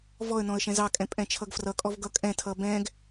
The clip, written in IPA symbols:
v ɔ ə̯ n ɔ̃ ə̯ ʃ ɛ̃ z ɑ kʼ ɛ̃ pʼ ɛ̃ t͡ʃʰ ʌ ɡ f r ʌ kʼ ɔ v ɡ ʌ kʼ ɛ̃ tʰ ʌ b ɛ̃ ɡ

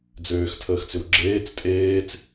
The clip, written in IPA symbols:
d͡z øː x tʰ əː x t͡s ʏ w ɡ͡ǁ eː t͡s tʼ eː t͡s

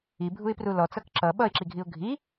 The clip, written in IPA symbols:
i bʱ u ɪ̯ p r u l ɔ t͡s ʌ k ǁ ʌ ɓ ʌ ɪ̯ ǁ i ɡʱ i ʊ̯ ɡʱ i

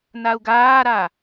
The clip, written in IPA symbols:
n a u̯ ɡ aː ɾ a

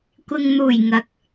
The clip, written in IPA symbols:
kʷ ɪ˨ ŋ n̪ uː˨˩ j ŋ ɐ˨˥ k̚

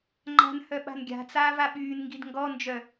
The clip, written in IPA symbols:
ŋ͡ǃ a̤ n h œ ɓ a̤ n ɡʲ a̤ t͡s aː v a ɓ yː n ŋ ɡ i d ŋ ɡ ɔ n d͡ʒ œ

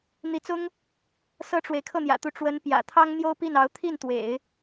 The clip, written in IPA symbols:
n̪ i˧˥ t͡s ʊ˥ ŋ | s ɤ˥ ʈ͡ʂ w e˨ ɪ̯ kʰ ɤ˥˩ n̪ j ä̰˨˩ t̪ u˧˥ ʈ͡ʂ w ə˧˥ n p j ä̰˨˩ t̪ʰ ɑ˥ ŋ n̪ j o˥ ʊ̯ p i˥˩ n ɑ˧˥ ʊ̯ t̪ʰ i˥˩ n t̪ w ḛ˨˩˦ ɪ̯

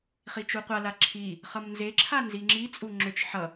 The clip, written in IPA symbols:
χ i t͡ʃ u qʷ a l a ǁʰ i | χ ʌ m n z e ǁʰ a n z i ŋ͡ǁ i t͡sʼ u ŋ͡ǁ ʏ t͡ʃ ħ ʌ

